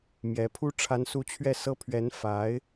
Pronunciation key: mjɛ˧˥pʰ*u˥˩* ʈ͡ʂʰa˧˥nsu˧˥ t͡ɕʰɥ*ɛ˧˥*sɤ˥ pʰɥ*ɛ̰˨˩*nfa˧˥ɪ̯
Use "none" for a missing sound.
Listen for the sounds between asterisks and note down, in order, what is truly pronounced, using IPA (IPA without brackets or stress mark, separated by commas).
u˥, ɛ˥˩, ɛ˧˥